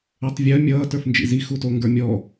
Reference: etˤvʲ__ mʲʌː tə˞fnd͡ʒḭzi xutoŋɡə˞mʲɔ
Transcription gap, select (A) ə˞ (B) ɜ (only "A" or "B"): B